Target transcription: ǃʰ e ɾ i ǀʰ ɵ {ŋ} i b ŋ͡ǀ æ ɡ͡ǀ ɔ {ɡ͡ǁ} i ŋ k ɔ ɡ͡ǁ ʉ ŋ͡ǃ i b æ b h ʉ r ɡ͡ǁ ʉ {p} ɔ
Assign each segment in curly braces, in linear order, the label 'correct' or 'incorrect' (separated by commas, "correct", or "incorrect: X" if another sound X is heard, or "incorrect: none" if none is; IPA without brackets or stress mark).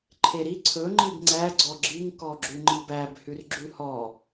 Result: incorrect: ŋ͡ǃ, correct, incorrect: h